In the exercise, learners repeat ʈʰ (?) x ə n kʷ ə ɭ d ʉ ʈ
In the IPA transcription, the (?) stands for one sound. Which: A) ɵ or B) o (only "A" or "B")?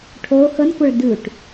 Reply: B